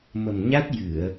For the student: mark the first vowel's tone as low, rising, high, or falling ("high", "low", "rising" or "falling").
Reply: low